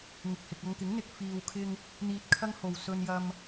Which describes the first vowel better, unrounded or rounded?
unrounded